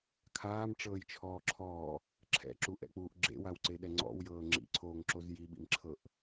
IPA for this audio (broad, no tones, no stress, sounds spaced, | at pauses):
kʰ aː m ʈ͡ʂ ɤː j t͡ʃʰ ɔː ǁʰ ɔː | ǁʰ ɛ̰ ǁ u ʔ ɛ̰ k͡p uː ʔ ɡ͡ǁ ḛ w a w ǀ e ɗ ɛ ŋ͡ǀ ɔ̰ w j ɤː ŋ͡ǁ ḭ ǀʰ oː ŋ ǁ o z j i ɓ ḭ m ǁʰ ɤ ʔ